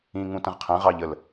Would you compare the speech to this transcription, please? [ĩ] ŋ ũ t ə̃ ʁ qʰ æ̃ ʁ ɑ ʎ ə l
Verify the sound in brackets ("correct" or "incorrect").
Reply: correct